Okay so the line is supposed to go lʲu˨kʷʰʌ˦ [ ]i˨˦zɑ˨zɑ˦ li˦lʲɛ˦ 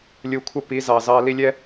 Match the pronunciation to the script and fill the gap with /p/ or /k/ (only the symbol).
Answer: p